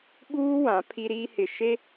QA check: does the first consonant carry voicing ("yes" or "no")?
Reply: yes